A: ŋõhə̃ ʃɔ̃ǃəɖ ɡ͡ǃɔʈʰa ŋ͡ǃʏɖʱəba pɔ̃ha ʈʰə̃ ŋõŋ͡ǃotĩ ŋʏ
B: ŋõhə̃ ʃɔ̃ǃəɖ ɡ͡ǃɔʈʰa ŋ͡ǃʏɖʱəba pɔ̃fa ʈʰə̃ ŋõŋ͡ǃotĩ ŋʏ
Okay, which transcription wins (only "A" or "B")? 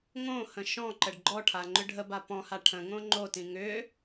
A